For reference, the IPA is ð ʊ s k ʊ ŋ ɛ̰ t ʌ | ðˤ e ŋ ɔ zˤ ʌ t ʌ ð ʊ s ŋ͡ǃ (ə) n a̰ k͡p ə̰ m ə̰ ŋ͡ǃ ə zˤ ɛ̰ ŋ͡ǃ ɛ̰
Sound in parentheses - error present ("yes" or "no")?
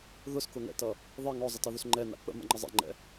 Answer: yes